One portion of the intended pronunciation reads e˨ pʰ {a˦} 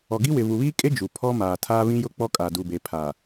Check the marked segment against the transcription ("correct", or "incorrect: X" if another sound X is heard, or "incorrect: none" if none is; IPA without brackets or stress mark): incorrect: a˨